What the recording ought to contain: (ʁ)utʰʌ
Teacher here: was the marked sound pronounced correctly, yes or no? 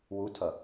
no